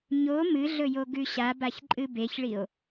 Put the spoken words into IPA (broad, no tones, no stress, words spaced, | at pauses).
ɲo mɨɮɵjo ɡʉɕa baçǃʼɨbeçɭio̯